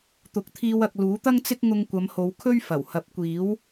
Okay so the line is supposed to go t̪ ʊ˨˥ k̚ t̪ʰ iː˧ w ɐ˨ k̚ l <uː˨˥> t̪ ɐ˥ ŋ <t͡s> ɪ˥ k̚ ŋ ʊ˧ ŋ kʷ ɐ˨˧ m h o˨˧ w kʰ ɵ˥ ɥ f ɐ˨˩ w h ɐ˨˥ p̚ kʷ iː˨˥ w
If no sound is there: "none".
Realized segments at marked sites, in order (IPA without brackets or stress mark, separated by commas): uː˨˥, t͡s